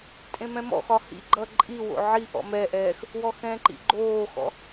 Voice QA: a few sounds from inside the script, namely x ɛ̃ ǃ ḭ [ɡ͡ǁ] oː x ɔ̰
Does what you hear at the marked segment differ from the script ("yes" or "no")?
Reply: yes